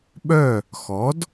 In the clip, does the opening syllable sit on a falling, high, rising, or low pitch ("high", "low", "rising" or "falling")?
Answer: falling